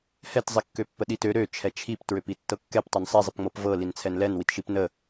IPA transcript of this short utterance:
hɛt zˤikːøpːəɗit ø ɾø t͡ʃʰɛt͡ʃʰip tɹøpitːɤkːɛp tˤənsˤɛ zˤipŋ͡mɤpvɤ lint͡sʰɛnlɛn witʃipnə

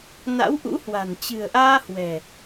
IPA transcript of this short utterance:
na̰˧˥wʔṵ˧˥hwa̤˨˩n t͡ɕɨ̤˨˩ə̯ʔaː˧ hwɛ̤˨˩

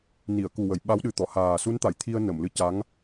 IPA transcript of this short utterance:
ni˨˩˨ə̯ku˨˩wə˨˩˨j ɓa˧˥wɗɨ˨˩t̪ɔ˨˩˨ haː˨˩su˧˥nt̪a˨˩˨jt̪ʰi˧ə̯ nə˨˩˨mlɨ˧ca˧˥ŋ

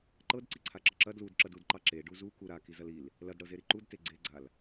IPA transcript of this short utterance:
ǃɤdǀiǀʰa ǁɐǁɐ dlud ǁɐdudǃɑ ǁe ɖuzu kuɾa kizɐlil | lɐdɽɤzeɾi ǃudte ɡ͡ǀeɡ͡ǀal

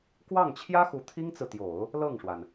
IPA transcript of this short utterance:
kwɑ˥˩ŋt͡ɕʰjä˥xu˧˥ t̪ʰi˥ŋt͡sɹ̩˨t̪jo˨˩˦ʊ̯ | lɤ˥˩ŋʂwa˩n

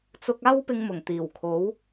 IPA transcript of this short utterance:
t͡sʊ˧k̚ aː˥wpɪ˧ŋmʊ˨˩ŋ t̪iː˨˩wkʰo˨˥w

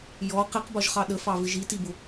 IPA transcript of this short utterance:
jɔ qiqbɒʒχɑ ɗəfɑvɪ ʒitibʊ

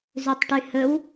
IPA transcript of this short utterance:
zʉtˤʈyhɵw

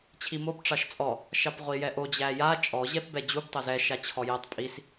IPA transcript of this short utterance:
t͡ɕʰimob ʈ͡ʂɑʃt͡sʼɔ | ʃɑpʁʷijɛʔo d͡ʑæja t͡ʃʼɔ ʑɛpbɛd͡ʑub tˤozɛ ʃat͡ɕʰɔjɛtˤ pʼis

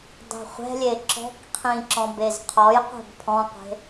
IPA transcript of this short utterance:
dˤɛ̤χʷɛ̤lʲe ǁɔ̤kqʰĩ ǁɔ̃bezqʰɔjqʷɛ̤b pʰɔ̃qʷe̤

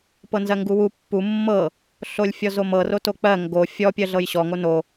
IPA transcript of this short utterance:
pɤnzɜŋɡuwu pːu mːɤ | ɬolʲfʲɔzomɤ rotok͡pɜ ŋɡo fʲɔ pʲɜɮɤjɕɔ ŋono

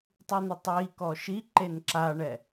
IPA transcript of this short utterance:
tˤɨn̪otˤwikɔ ʃi ǃenǁaɳɛ

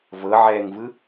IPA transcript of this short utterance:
vɤʕɛːŋvɯ

